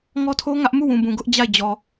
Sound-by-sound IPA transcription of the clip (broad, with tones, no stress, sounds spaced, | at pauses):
ŋ ɔ˦ tʰ o˦ ŋ ä˦ ʔ m u˦˨ w ũ˨ b ũ˨ ɡ ʊ˦ ʔ d͡ʑ a˦˨ ɪ̯ d͡ʑ ɔ˨